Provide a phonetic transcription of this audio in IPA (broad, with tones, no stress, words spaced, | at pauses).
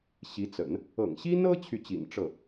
ɕi˧˥t͡sə̰˨˩˦n | ɤ̰˨˩ŋɕi˥nɤ˥ t͡ɕʰy˥˩t͡ɕḭ˨˩n ʈ͡ʂɤ˥˩